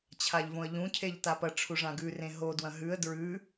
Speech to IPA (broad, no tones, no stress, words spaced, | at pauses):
t͡ɕʰaʎvõə̯ʎũ cʰeʎtapɐ ʈ͡ʂʰuʐãɡʉ rẽɦo dwɐ̃ɦʉə̯ dɹʉ